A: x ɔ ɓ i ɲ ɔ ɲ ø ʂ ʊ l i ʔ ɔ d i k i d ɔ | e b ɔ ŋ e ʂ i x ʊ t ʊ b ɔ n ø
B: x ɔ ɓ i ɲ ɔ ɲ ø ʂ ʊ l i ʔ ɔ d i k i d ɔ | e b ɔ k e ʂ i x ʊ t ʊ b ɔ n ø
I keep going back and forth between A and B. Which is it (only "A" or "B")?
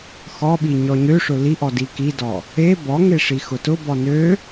A